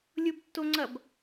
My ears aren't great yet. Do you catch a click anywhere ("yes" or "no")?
yes